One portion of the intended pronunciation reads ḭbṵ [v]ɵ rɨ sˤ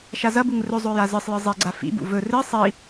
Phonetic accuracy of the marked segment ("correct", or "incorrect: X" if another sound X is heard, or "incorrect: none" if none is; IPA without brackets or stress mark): correct